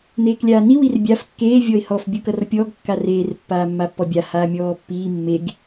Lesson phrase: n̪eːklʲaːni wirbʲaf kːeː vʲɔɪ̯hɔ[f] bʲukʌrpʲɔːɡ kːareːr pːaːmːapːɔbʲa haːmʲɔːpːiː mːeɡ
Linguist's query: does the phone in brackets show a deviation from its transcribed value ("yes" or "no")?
no